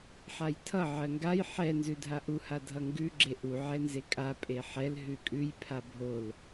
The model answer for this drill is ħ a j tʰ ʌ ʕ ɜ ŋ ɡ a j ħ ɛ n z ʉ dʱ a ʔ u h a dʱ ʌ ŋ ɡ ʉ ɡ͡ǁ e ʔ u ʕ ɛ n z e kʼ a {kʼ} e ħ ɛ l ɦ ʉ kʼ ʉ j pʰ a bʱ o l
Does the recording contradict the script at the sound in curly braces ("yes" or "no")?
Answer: yes